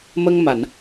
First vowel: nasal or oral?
oral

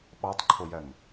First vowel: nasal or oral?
oral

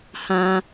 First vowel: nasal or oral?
nasal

